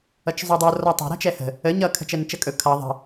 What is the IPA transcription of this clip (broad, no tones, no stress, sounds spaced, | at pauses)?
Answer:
ʌ t͡ʃ zˤ ʉ dˤ o r ɔ tˤ ɛ̤ ɾ ɛ̤ t͡ʃ ɛ h ə̤ | ə ɲ ʌ kʰ ə̤ t͡ʃ ɛ n t͡ʃ ə kʼ ɵ kʰ ʌ ðˤ ə̤